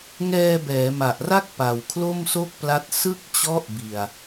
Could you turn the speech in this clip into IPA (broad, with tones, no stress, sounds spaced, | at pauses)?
ŋ ɛː˧ b ɛː˩˦ m a˨˩ ʔ r a˥˩ k̚ p a˨˩ w kʰ l o˥˩ m s o˥˩ k̚ p l a˦˥ t̚ s ɯ˥˩ k̚ t͡ɕ ɔ˦˥ ʔ b i˨˩ a̯